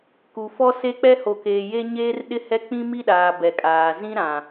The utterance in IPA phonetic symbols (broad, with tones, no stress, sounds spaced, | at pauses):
k u˨ f ɔ˦ s e˦ k͡p ɛ˦ h o˨ k eː˨ j e˦ ɲ eː˦ r ɗ ɪ˦ h ɛ˦ k͡p ĩ˦ m i˦ ɗ aː˨ b ɛ˨ kʼ aː˨ z ĩ˦ ɾ ã˨